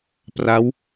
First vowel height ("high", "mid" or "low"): low